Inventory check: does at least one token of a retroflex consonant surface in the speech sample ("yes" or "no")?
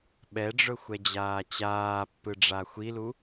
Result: yes